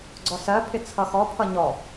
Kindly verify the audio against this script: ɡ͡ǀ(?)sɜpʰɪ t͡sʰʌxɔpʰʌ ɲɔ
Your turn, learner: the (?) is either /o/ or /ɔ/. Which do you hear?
ɔ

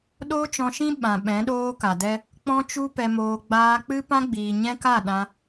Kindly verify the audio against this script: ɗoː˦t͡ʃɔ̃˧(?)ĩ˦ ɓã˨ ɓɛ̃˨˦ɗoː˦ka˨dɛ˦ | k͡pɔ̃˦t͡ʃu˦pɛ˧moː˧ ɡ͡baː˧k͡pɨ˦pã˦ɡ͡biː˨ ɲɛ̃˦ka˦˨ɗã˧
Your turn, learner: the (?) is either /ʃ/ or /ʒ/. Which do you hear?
ʃ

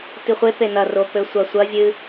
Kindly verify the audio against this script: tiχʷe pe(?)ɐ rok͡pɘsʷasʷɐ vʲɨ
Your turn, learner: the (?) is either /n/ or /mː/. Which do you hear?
n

